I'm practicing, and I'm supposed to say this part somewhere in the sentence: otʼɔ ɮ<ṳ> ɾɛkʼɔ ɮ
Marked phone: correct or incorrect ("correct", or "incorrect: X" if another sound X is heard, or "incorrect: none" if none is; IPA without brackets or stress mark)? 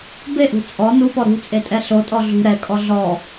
correct